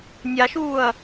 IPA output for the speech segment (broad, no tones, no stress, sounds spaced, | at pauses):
nʲ a ʃ uː ɐ̯